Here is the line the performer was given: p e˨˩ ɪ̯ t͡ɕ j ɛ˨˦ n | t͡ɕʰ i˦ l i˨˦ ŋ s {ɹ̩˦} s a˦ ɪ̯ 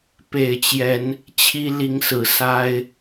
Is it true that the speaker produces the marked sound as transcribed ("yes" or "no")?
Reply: no